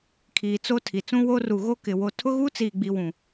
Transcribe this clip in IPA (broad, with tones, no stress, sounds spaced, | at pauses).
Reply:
kʰ iː˨ t͡s o˦ tʰ i˨ t͡s ũ˦ w o˦ r u˨ ɣ o˦ k ɪ˨ w o˦ tʰ ʊ˦ ɣ uː˦ t͡s iː˨ ɡ͡b i˨ w ũ˨